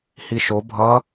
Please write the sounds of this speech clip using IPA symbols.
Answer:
h i ʃ o bʱ ʌ

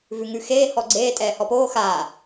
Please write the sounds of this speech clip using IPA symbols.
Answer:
v ʉ ŋ ʉ x eː h ɔ ɡ͡ǀ eː tʼ ɛː h ɔ p oː x aː

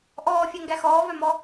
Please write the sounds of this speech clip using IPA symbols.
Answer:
ʔ ɔː fʲ æ ŋ ɡ æ x ɔː v œ m ɔ

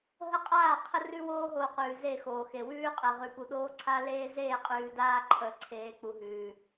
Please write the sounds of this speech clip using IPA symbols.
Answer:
ɦ ə˦ qʼ aː˦˨ qʰ ə˦ r ʉ˦ w oː˦ ɦ oː˨ q ʉː˨ z e˦˨ x oː˨ x e˨ w ʉː˦ qʼ ɛ˨ ʁ ʉ˨ p u˨ ɗ oː˦ ǀʰ a˦ l eː˦ z eː˦˨ qʼ ʉː˨ d aː˦ ǃʰ ə˨˦ ǀʰ eː˨ k͡p u˨ ɦ ʉː˨

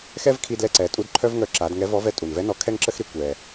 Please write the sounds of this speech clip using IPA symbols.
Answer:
x ɛ˥ v kʰ i˧ d l ɛ˧ ǀ ɛ˩˧ tʼ u˧˥ d ǃʰ œ˥ v ŋ œ˧˥ ǁ a˩˧ d ŋ ɛ˧˥ v ɔ˧˥ v ɛ˧˥ tʼ u˩ n v ɛ˧˥ n ɔ˧˥ kʰ ɛ˥ ŋ ǁ ə˥ x ɾ i˧ kʷ ɛ˩

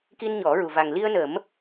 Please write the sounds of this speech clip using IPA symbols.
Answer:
k i˧ n ɲ ɔ˨˩˦ ɹ u˨˩ v a˨˩ ŋ l i˧ ə̯ n ə˨˩˦ m

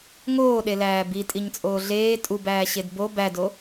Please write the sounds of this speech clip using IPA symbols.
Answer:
ŋ oː ɗ e l æː b i tʼ i ɲ t͡sʼ oː ɮ eː tʼ u b æː ɕ e d b o b æ d o

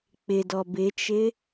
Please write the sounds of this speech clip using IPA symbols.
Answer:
k͡p ɪ d ɔ b ɪ t͡ʃ ɪ

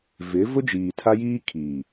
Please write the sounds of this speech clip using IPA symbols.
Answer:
v ɪ˨˦ v ʊ˦ d͡ʒ iː˨ tʰ a˦ j iː˦ kʰ iː˨

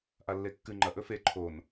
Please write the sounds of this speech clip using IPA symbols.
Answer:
ʔ a lː e kː ɨ ŋ͡ǃ ɐ ʔ ɵ f e ǃʰ o n

